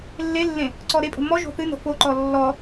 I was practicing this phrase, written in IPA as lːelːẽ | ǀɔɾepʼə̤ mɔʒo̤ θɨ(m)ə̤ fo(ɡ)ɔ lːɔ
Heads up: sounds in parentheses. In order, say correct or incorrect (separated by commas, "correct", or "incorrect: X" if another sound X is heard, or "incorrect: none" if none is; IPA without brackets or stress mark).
incorrect: n, incorrect: ǃ